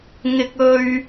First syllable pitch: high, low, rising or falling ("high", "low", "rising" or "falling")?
high